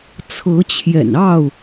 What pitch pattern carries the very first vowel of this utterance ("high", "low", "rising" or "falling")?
rising